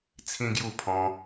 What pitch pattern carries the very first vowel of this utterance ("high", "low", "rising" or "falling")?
high